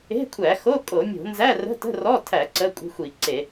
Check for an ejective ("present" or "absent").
present